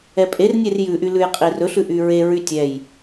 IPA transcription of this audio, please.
ɛpʼernʲer jʉʔy lʉjqʼirɵɬʉ ʔyɹeɹy tʲɛj

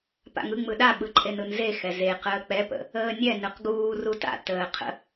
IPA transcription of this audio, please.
pa̰ŋɯ ŋ͡mɯɗaɓɯǃʼen ɯnze xɛzeqəː k͡pɛpə̰ | əːnʲɛ nɯqɡuː ruta̰ təːqʰə̰

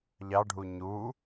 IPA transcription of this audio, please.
ʎɑɖʱu ɲu

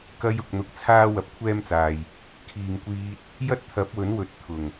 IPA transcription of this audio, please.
kɐ˧jʊ˨k̚ n̪ʊ˨˥k̚t͡sʰaː˥ wɐ˧p̚kʷʰɛː˥mt͡saː˨j | kʰiː˨ŋkʷiː˧t̚ | jɐ˥t̚t̪ʰɐ˨˥p̚wɵ˨˥n wɵ˨˥t̚t̪ʰʊ˨˩ŋ

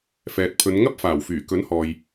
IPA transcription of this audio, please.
fɛː˨t̚pʰɵ˨˧nŋɐ˥p̚ faː˨˩wfyː˨˩ kɵ˨˥nhɔː˨j

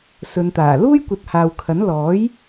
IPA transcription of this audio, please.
sɵ˨˧nt̪aː˨˩ luː˥jkʷɐ˨t̚ haː˨wkʰɐ˨˥n lɔː˨˥j

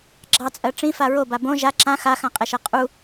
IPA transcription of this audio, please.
ɡ͡ǁɑt͡sʼɜ ʈ͡ʂĩfa ɹoba bõ ʒa ǁã xaxãqʼɛʃɜ qʼu

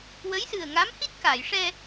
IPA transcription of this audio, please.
wə˧˥jsɨ˨˩ə̯ŋa˧˥mhi˦˥t̚ ka˨˩˨jʂɛ˧

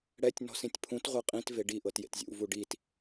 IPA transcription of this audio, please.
ɽɛtʲ nɔ̤sĩtʲpʰũt ʁʷɤqʼĩt veɖi ʔɤtjḛtzʲṵ vuɖit

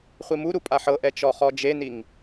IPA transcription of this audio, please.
χʷimuɾu pʼaħɤʔɛ t͡ʃɔχɔd͡ʒeniŋ

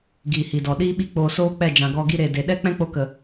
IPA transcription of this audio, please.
ɡiː˨hi˨dɔ˨ɗiː˦ ɓi˦k͡poː˧soː˦k͡pɛ˦˨ d͡ʒã˨ɡɔ˧ɡi˧ ɾe˨ de˨ ɗɛ˦ k͡pɛ̃˦k͡po˧kə˨

